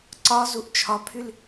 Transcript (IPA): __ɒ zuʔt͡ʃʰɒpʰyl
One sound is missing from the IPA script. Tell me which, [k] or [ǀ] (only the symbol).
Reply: ǀ